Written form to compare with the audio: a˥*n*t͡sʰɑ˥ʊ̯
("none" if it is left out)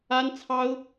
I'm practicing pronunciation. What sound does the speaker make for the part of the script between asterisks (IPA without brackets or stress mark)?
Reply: n